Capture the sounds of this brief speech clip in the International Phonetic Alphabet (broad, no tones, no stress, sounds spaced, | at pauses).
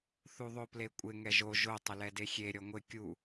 θ u ðˤ o p l e kʷʼ ɪ ŋ ɛ ʒ o ʒ o tˤ ɪ l ɛ d e xʲ e ɾʲ ɔ ŋʷ ɪ kʲ u